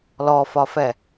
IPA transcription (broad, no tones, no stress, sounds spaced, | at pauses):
l ɔ f ɒ f ɛ